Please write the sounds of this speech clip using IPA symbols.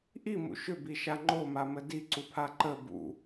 ʔ i m ṵ ʃ ʏ b i ʃ a ŋ͡ǃ o m a m ə d i ǀ u pʰ a ǃ ə b ṵ

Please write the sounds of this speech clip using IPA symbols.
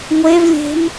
ŋʷ e v lʲ e̤ m

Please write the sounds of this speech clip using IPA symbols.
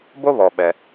b o˥ β ɔ˩ ɓ ɛ˩

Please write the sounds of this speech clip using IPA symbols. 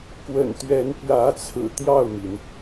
k w ə̰˨˩ n t̪ ɥ ɛ˧˥ n p j ä˧˥ t͡sʰ ɹ̩˨˩ t̪ j ɑ˥˩ ʊ̯ m i˩ n

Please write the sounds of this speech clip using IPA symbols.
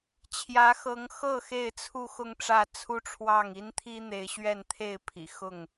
t͡ɕʰ j ä˨˦ x ɤ˨˦ ŋ x ɤ˥˨ x e˥˨ ɪ̯ t͡sʰ u˥˨ x ʊ˥˨ ŋ ʈ͡ʂ ä˥˨ t͡sʰ u˦ ʈ͡ʂʰ w ɑ˥˨ ŋ i˦ n t̪ʰ i˦ n̪ e˨˦ ɪ̯ ɕ ɥ ɛ˥˨ n t̪ʰ e˥˨ ɪ̯ pʰ ḭ˨˩ x ʊ˥˨ ŋ

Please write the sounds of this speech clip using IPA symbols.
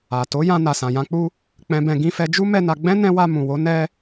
a˨ t o˨˦ j ã˧ n a˨ s ã˨ j ã˨˦ k͡p u˦ | k͡p ɛ̃˧ b ɛ̃˧ ɡ ĩ˧ f ɛ˧ d͡ʒ u˦ m ɛ˦ n a˧ ɡ͡b ɛ̃˦ n ɛ̃˦ w a˧ m ũ˨ w o˨˦ n ɛ˦

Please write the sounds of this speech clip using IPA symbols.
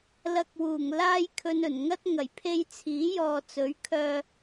l ɐ˧ k̚ w uː˨˩ ŋ l aː˥ j kʰ ɵ˧ n ɵ˨˩ n ŋ ɐ˥ t̚ ŋ ɐ˨˩ j pʰ e˧ j t͡sʰ iː˨˥ j ɔː˨ t͡s ɵ˨˥ ɥ kʰ œː˧

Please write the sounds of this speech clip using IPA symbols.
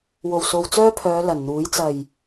w o˨˩ w s o˨ w t͡s œː˥ pʰ œː˨˧ l ɐ˨˩ n n̪ uː˨˥ j t͡s ɐ˨˩ j

